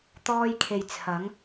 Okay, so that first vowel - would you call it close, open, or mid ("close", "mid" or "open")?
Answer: mid